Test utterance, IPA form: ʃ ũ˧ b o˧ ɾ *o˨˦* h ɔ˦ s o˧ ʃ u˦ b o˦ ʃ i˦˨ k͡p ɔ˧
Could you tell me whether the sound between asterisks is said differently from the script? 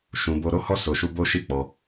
yes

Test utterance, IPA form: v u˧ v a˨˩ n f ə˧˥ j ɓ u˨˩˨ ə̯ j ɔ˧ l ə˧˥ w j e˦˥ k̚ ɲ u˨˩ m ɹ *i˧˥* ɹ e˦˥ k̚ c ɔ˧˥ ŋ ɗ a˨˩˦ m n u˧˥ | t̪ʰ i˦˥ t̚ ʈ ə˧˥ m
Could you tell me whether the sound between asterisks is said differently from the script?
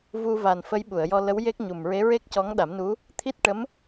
yes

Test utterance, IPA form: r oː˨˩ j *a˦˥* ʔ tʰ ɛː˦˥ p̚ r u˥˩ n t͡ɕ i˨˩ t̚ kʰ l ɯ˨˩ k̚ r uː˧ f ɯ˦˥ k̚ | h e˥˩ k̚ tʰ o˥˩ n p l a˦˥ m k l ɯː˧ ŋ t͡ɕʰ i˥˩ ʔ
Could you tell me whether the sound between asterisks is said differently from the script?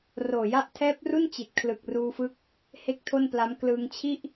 yes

